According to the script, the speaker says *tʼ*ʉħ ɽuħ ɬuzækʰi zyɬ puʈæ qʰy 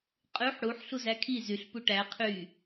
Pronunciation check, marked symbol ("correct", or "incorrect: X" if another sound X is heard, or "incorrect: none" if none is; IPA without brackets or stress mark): incorrect: qʼ